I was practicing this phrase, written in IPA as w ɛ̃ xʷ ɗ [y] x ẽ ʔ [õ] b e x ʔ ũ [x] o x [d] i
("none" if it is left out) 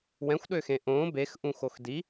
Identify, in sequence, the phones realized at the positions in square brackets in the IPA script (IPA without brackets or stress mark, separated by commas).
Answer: ø, õ, x, d